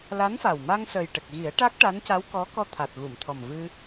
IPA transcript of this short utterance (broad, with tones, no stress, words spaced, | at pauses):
la˧˥nfa˨˩wma˧ŋ sə˨˩jʈə˨˩k̚ɣi˨˩˦ə̯ ʈa˦˥k̚ʈa˧˥nca˧˥w kɔ˧˥kɔ˧ t̪ʰa˨˩t̚ɣu˨˩˨m t̪ʰɔ˨˩mvɨ˧